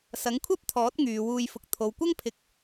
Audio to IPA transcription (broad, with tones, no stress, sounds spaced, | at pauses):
s ɐ˨˥ ŋ kʷʰ ɐ˥ p̚ t̪ʰ ɔː˨˥ t̚ ŋ yː˨˧ w uː˧ j f ʊ˧ k̚ t̪ʰ o˨ w kʷ ɐ˥ ŋ pʰ ɪ˧ k̚